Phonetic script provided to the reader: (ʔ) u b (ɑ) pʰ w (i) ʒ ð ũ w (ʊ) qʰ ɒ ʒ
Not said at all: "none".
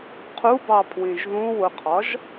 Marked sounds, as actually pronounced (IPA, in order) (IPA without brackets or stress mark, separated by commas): qʰ, ɑ, ĩ, ʊ